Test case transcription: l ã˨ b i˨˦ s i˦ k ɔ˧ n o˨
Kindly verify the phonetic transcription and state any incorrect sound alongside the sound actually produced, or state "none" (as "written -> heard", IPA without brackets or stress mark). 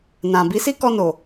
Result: l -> n